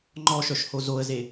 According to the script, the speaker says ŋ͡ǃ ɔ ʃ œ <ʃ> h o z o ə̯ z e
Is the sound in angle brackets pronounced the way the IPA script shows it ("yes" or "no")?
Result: yes